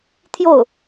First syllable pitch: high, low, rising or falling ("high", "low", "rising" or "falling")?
falling